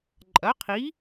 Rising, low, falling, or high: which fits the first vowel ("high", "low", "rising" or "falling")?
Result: rising